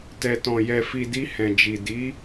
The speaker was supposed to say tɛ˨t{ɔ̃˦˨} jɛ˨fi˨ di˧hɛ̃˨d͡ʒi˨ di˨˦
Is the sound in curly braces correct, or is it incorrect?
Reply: incorrect